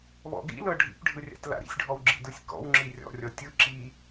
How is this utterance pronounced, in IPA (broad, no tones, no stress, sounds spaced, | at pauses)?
β ɔ̰ ɡ ḭ l ɤ ɖʱ ḭ p ɖʱ ɯ rʲ a̰ t l a̰ ɾ ḭ sʲ ɖʱ ɔ w ɡ͡ǁ ḭ d ɯ sʲ k ɔ̰ w ŋ͡ǁ i rʲ ɔ̰ rʲ ɔ tʲ ɯ ǁ i